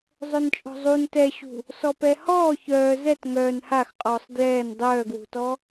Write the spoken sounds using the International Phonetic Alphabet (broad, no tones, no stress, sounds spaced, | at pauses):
zˤ œ n t͡ʃʼ ɔ̤ zˤ u n t ɛ ɕ ṳ | s ɔ p ɛ h ɔː ç œː z ɛ t ŋ œː n h a x qʼ ɔː sˤ d j ɛː n dˤ œː ɡ w ṳ t ɔ